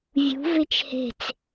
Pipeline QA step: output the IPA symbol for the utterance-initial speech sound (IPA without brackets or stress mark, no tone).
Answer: vʲ